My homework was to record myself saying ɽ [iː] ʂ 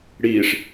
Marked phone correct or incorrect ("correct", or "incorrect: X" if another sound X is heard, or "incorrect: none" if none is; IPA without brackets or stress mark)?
correct